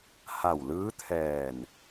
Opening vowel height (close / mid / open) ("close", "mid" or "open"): open